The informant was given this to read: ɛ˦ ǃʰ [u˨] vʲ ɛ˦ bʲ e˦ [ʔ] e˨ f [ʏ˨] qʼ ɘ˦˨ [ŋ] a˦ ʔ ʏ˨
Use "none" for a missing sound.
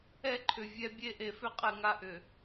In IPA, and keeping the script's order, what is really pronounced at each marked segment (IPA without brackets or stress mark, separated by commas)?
ʏ˨, ʔ, ʏ˦, ŋ